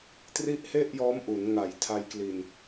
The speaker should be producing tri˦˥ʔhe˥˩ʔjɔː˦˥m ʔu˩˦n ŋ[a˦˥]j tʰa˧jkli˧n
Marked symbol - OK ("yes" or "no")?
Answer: no